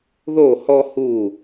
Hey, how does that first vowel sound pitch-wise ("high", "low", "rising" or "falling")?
falling